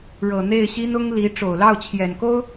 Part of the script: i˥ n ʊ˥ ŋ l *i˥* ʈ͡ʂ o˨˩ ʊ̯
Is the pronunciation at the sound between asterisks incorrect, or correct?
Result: incorrect: i˧˥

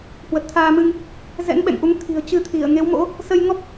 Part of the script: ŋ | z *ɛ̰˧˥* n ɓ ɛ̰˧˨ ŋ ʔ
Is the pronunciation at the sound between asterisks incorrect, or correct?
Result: correct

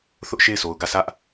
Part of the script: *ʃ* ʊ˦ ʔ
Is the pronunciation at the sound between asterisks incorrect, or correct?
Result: incorrect: θ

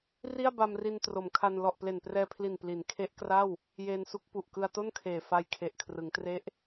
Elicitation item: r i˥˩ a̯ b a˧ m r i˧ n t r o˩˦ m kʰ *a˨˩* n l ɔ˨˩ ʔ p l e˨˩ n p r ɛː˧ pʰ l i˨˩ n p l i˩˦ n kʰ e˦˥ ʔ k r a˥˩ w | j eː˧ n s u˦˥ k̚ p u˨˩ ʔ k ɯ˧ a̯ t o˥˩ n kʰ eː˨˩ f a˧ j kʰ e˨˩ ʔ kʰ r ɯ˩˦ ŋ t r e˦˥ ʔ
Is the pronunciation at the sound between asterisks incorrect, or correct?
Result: incorrect: a˧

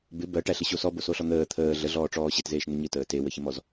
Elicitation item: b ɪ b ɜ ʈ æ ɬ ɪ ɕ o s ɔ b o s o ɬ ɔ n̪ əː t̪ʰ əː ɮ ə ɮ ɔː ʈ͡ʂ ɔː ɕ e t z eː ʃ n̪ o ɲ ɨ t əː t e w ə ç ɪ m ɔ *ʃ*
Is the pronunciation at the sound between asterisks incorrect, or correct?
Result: incorrect: z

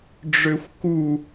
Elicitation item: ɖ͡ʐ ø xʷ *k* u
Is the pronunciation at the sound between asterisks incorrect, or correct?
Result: correct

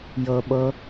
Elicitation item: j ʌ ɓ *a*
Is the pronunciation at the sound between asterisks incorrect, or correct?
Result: incorrect: ʌ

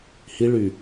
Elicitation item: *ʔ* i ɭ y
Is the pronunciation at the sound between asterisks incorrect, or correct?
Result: incorrect: h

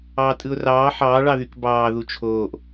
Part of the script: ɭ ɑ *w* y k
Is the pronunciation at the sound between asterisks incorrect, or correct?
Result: incorrect: ð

